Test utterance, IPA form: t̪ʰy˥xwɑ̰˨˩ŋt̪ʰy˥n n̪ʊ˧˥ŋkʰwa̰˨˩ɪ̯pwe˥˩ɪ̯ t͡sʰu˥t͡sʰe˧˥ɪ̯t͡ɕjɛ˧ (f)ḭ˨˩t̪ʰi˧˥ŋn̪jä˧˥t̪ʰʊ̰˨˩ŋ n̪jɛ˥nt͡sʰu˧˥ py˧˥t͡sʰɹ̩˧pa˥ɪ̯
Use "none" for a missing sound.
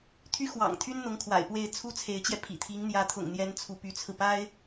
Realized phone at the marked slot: pʰ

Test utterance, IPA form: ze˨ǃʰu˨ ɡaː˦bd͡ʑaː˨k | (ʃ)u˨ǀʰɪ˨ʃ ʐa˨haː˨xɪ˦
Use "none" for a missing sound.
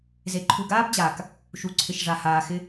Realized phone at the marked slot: ʃ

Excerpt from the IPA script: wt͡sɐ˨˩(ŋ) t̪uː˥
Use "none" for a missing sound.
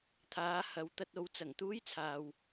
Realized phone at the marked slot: ŋ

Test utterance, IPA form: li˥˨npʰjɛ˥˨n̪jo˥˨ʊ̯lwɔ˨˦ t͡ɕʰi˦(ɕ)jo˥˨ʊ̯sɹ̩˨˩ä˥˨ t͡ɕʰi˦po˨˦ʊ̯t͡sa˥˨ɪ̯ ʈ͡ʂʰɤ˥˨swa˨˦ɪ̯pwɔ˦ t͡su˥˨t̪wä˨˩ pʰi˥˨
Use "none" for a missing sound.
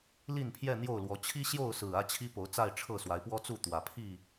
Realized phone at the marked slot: ɕ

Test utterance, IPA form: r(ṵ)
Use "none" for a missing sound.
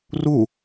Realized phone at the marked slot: u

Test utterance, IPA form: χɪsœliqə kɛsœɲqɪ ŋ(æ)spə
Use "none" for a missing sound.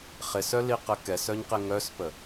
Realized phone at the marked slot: œ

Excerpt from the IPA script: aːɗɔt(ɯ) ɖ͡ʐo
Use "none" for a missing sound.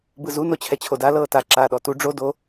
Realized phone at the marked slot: u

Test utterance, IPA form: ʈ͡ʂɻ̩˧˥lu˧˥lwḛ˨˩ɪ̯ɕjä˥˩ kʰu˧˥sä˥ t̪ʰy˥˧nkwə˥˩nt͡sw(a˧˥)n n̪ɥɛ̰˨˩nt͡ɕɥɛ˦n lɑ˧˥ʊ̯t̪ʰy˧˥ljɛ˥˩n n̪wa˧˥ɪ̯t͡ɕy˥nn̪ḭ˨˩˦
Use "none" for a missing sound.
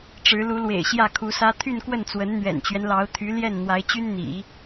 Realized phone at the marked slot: ə˧˥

